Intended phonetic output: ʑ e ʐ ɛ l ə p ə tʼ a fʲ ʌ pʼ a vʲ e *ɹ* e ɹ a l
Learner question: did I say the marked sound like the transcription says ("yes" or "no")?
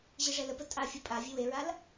no